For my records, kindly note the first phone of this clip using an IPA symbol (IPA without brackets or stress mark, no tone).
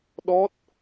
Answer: ɗ